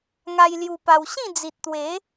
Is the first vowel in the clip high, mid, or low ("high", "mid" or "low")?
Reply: low